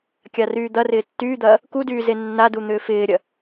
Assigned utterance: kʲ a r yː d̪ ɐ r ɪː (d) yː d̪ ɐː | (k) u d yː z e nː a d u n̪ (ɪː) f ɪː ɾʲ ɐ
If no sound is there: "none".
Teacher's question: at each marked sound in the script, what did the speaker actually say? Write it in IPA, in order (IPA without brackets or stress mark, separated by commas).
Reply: tː, k, ʏː